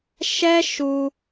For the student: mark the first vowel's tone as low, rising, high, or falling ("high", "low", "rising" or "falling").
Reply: high